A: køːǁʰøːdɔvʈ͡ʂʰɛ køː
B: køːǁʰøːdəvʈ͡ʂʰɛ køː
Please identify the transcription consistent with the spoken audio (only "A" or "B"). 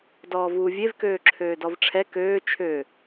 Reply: A